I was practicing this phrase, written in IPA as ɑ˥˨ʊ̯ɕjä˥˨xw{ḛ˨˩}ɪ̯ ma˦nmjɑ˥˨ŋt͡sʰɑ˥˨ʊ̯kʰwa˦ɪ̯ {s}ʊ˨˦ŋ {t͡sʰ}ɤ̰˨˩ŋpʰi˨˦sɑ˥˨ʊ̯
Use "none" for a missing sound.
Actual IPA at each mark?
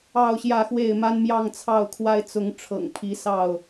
e˥˨, t͡s, ʈ͡ʂʰ

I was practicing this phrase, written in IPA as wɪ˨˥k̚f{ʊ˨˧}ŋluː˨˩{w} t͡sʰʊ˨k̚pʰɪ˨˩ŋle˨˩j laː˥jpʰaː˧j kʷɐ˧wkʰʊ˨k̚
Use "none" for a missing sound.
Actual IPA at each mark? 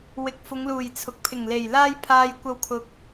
ʊ˨˧, j

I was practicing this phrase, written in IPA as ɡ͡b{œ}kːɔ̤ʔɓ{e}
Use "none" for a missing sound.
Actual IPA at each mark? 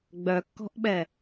œ, ɛ

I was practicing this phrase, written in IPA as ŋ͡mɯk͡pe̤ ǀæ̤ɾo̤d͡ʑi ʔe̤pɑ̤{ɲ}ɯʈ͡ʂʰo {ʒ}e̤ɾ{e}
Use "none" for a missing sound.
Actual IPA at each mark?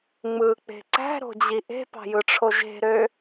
j, ʒ, ø

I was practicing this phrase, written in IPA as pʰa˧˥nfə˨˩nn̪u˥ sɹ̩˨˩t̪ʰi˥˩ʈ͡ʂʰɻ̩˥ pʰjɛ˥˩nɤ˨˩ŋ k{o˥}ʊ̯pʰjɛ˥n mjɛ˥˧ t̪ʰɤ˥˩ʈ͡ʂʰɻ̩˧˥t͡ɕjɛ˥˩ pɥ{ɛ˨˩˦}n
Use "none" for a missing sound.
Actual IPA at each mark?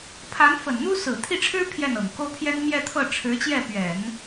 o˥, ɛ˨˩˦

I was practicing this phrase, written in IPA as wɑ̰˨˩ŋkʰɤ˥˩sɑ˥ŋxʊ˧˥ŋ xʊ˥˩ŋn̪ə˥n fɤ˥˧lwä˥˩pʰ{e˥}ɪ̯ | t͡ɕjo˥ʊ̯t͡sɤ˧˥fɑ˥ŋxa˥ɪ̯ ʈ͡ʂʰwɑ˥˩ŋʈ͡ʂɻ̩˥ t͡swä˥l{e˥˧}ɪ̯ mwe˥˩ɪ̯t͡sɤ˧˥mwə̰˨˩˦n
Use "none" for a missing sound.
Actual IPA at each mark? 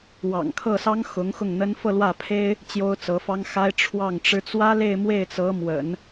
e˥, e˥˧

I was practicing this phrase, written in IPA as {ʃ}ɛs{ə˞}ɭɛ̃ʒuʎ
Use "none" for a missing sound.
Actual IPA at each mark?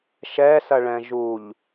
ʃ, ɐ

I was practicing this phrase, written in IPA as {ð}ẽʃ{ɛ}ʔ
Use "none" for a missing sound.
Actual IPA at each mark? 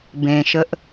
b, ə

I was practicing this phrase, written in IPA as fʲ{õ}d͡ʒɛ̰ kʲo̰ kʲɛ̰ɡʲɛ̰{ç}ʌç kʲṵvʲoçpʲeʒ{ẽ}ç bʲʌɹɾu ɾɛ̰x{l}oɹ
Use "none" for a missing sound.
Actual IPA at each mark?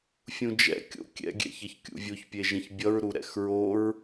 ũ, ç, ẽ, ɹ

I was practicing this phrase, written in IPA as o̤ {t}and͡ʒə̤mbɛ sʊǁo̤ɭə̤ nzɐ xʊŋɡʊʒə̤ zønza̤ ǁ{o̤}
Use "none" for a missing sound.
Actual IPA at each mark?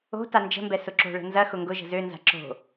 t, o̤

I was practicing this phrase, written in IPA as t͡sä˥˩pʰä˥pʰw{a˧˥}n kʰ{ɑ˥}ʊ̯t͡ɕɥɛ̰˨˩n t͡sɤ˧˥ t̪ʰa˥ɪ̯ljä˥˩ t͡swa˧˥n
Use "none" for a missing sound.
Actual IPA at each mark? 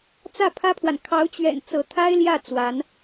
a˨, ɑ˧˥

